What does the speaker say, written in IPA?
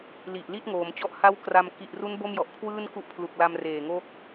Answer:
l i˨˩ ʔ l i˥˩ t̚ ŋ oː˩˦ m t͡ɕ ɔ˦˥ ʔ h a˦˥ w k r a˧ m k i˨˩ ʔ r u˦˥ n b o˥˩ m j ɔ˨˩ ʔ kʰ w ɯː˥˩ n k u˦˥ ʔ pʰ l u˨˩ k̚ l a˧ m r eː˨˩ ŋ o˦˥ k̚

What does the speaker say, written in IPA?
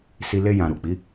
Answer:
s i˧ l e˧ j ã˨ ɾ u˨ k͡p i˨˦

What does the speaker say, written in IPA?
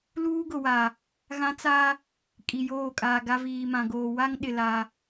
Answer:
l uː˦ ɡ ʊ˨ w a˨ | ɣ ã˦ t͡s a˦ | kʼ i˨ j oː˦˨ kʼ aː˨ ɡ a˦ v iː˨ m ã˨ ɡ oː˨ w a˦ ŋ ɗ ɪ˨ l a˨

